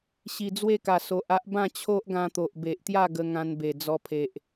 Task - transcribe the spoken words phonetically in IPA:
ɕ i˨˩ d͡z w e˦ k a˨˩ s o˨ ʔ a˦ ʔ b ã˥˧ t͡ɕʰ o˦ ʔ ɡ ã˧ t̪ o˨ ʔ b e˨ ʔ t̪ j a˥˧ ɡ ə˧ ŋ ã˧ n b e˨˩ d͡z ɔ˧ pʰ e˨ ʔ

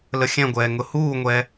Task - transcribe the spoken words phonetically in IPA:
l ə xʲ ɛ̃ ɡʷ ɛː ŋ ʊ h uː ŋʷ ɛ

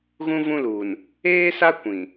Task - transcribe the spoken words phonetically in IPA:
ɣ ũ˦ v ũ˦ l uː˨ n | eː˦ s a˦ kʷ ĩ˨

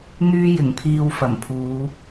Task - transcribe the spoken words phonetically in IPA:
n̪ yː˧ j ɪ˨˩ ŋ pʰ iː˨ w f ɐ˨˩ m pʰ uː˨˧

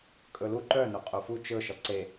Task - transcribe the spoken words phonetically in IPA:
kʼ ɵ l u ǃ œ n o qʼ o f u t͡ʃ ɵ ʃ ɔ ǀ e

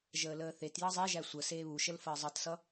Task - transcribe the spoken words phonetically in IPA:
ʒ əː l əː θ e t j ʌ zˤ e ʒ æ sʷ ə s eː β u ʃ ə l f əː zˤ ʌ t s ʌ

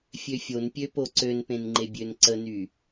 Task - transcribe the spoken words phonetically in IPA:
fʲ ø fʲ o n pʲ ø p o ǀ ø n p ẽ n ŋ͡ǃ e bʲ ø n ǀ ə n y

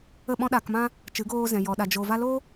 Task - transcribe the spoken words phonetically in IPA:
ə˦˨ ɓ ɔ̃˦ ɗ aː˧ k m ã˦ | t͡ʃ ɨ˨˦ ɡ oː˧ z ɛ̃˨ j ɔ˨ ɗ a˨ d͡ʒ o˨ v a˧ l o˦

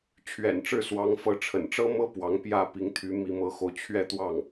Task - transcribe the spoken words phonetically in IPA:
t͡ɕʰ ɥ ɛ̰˨˩ n ʈ͡ʂ ɻ̩˥˩ s w ɑ˧˥ ŋ f ɤ˧˥ ʈ͡ʂʰ ə̰˨˩ n ʈ͡ʂ ɤ˥ m ɤ˥ p w ɑ˧˥ ŋ p j ä˥˩ p i˧˥ ŋ t̪ʰ y˧˥ m i˧˥ m ɤ˧˥ x o˧ ʊ̯ t͡ɕʰ ɥ ɛ˥˧ t̪ w ɑ˥˩ ŋ

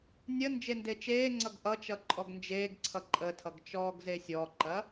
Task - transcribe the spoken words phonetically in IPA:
nʲ ə n d͡ʒ e n d e t͡ʃ eː ŋ͡ǀ ʌ ɡ ʔ ʌ t͡ʃ ʌ ǃʼ ɔ ɡ n d͡ʒ eː ɡ ǀʰ ʌ ǃʼ ə tʰ ʌ ɡ t͡ʃ ɔː ɡ z e sʲ ɔ ǃ ɐ

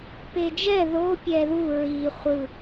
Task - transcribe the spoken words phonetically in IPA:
p e d͡ʒ ɛ ð o pʲ ɛ ð u ɹ i χʷ ɯ

